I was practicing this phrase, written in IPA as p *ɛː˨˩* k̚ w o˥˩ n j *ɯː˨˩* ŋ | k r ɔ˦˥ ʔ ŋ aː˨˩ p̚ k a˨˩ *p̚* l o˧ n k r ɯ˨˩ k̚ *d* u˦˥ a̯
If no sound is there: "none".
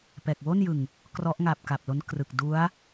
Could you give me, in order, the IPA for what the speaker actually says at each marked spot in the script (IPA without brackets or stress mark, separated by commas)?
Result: ɛː˨˩, ɯ˨˩, p̚, d